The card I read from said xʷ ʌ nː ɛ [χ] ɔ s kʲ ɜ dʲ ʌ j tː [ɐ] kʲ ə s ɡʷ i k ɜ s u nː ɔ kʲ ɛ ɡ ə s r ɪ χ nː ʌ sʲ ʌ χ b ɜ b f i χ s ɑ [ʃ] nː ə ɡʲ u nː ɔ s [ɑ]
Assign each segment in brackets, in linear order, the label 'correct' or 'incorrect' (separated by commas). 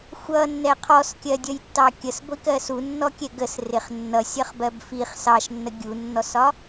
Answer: incorrect, incorrect, correct, incorrect